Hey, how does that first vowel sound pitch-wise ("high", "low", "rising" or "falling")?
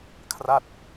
falling